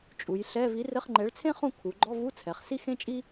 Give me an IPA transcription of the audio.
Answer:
t͡ʃʼ u˩˧ j ɬ ɛ˧˥˧ v i˨˥ r ɘ˧˥˧ χ ŋ͡ǃ ɛ˨˥ ɭ t͡sʰ ẽ˥ χ ũ˥˨ kʰ u˩˧ ɡ͡ǃ ɔ˧˥˧ v u˧˥˧ t͡sʰ ɛ˩˧ χ s i˥ x ẽ˥ t͡ʃʼ i˥

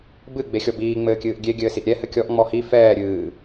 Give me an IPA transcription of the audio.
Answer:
b ɨ ɡ͡b e xʲ ɔ b iː ŋ͡m ɘː kʲ ɨː ʔ ɡʲ e ɡʲ ɘː s i ʔ ɾʲ ɛ h ɘ kʲ ɔ ʔ ŋ͡m ɔ h i f ɛː ɾʲ ɨː

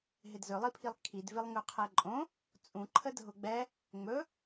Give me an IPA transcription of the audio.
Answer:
ɦ ɪ d z ɵ lˠ i pʰ i lˠ kʰ i d v ɪ lˠ ŋ ɵ qʰ ɛ ǃʼ õ | t͡sʼ ũ ǃʰ ə dʱ ʊ ɡ͡b ɛ | ŋ͡m ɵ

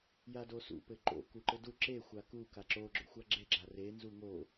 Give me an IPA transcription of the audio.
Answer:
j a d o s ṵ p ɘ ǃ o̰ k u ǃ ɘ d u ǁ e xʷ a k u k a ǁ o ɡ͡ǁ o̰ xʷ a ɡ͡ǁ e ɡ͡ǁ a r e n z u ŋ o

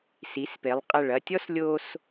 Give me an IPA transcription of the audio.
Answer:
s i˩˧ s p e˩˧ lˠ qʼ ɐ˧˩ ɭ ɐ˥˧ tʲ ɔ˥ s lʲ o˧ s

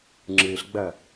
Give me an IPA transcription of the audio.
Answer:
ŋ͡ǁ ɨː ɬ ɡ͡b ɐː

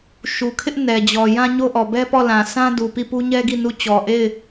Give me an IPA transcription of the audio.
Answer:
ʃ u˨ kʰ ɪ˦ ʔ n ɛ˨ d͡ʑ ɔ˨ j ã˦ ɲ o˦ ʔ ɔ˨ b ɛ˦ p ɔ˦˨ l ã˨ s ã˦ d u˨ p i˦˨ p u˦ ɲ ɛ˦ ɡ i˦˨ n u˦˨ t͡ɕ ɔ˨ ʔ e˦˨ ɪ̯

